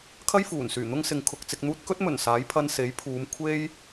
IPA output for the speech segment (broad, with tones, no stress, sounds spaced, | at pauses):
kʰ ɐ˥ j f uː˨˩ n s yː˨˩ n̪ ʊ˥ ŋ s ɪ˨˧ ŋ kʰ ʊ˨ k̚ t͡s ɪ˨ k̚ n̪ uː˧ t̚ k ɵ˥ t̚ m ɵ˨˩ n s aː˨˥ j pʰ ɐ˧ n s e˨˥ j pʰ uː˨˧ m kʷʰ e˥ j